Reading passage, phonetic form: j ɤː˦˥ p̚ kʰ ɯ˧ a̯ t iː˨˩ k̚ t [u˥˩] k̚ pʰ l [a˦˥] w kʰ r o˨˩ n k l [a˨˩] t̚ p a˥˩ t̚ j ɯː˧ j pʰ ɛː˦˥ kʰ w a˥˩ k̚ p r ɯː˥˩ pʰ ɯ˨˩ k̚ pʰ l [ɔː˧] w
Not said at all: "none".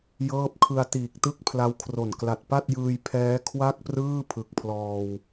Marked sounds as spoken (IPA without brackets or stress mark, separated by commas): ɯ˥˩, a˦˥, a˨˩, ɔː˧